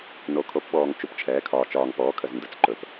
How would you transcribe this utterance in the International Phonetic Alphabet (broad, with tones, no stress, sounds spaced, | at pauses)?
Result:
n o˩˧ kʰ o˩˧ p ɓ ɔː˩ ŋ t͡ʃ u˩ p t͡ʃʰ ɛː˩˧ kʰ ɒː˩ t͡ʃ ɒː˩ ŋ p ɔː˩˧ kʰ ə˩ z n d ə˩˧ t͡s ǃ ɵ˩˧ p